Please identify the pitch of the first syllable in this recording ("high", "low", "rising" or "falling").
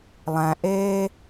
low